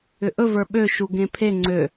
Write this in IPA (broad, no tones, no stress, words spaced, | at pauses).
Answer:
ʏʔɵ və˞ɓø ʃuɡẽpʰe ŋ͡ǀø